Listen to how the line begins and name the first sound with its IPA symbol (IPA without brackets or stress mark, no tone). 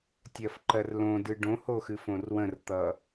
tʲ